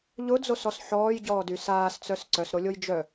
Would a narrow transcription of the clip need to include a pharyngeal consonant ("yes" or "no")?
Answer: yes